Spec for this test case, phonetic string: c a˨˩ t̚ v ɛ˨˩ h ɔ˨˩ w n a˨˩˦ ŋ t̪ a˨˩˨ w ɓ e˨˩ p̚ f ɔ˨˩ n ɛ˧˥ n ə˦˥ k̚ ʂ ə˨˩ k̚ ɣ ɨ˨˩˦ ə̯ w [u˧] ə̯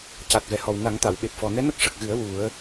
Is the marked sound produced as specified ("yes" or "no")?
no